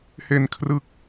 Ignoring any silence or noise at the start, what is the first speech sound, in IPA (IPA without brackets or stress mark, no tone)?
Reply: h